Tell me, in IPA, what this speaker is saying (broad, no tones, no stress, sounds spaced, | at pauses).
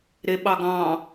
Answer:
ɾ e ɓ ɑ ɡ ɑ̃